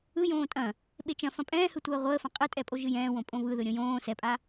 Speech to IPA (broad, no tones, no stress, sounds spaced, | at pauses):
ɯ j õː tʼ ɐ̃ | ɓ e t͡ʃ ɐ̃ f ɐ̃ pʼ ɛ̃ː h ɯ tʷ ɐː ʁʷ əː f ɐ̃ qʼ ɨ tʼ ɛ pʼ o ʒ ɨ j ɛ̃ː w õ pʼ õ v ɯ ð ɯ ɾʲ õ j õː s ɛ pʼ a